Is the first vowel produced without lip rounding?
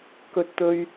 no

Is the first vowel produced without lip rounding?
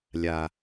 yes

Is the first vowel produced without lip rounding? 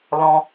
no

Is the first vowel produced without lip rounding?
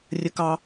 yes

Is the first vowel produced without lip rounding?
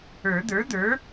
yes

